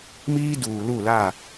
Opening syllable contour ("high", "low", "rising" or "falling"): high